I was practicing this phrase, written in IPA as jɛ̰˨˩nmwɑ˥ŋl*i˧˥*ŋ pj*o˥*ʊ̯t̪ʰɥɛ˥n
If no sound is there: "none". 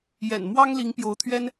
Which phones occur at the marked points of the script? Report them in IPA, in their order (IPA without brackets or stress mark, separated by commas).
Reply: i˧˥, o˧˥